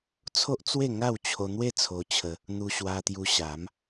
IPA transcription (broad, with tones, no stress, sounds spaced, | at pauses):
t͡sʰ o˦ ʔ t͡s w e˥˧ ŋ a˥˧ w t͡ɕʰ o˧ n̪ w e˥˧ t͡sʰ o˧ t͡ɕʰ ə˧ | n̪ u˧ ɕ w a˧ t̪ j u˧ ɕ a˨˦ m